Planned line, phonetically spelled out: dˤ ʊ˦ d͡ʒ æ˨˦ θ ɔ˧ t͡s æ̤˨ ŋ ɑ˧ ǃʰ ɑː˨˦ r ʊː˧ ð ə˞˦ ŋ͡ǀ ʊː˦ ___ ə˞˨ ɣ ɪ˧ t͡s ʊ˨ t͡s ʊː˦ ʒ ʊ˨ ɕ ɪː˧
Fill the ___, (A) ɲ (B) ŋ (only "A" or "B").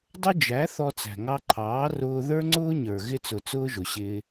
A